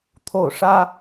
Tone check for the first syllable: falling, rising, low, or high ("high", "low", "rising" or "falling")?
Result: falling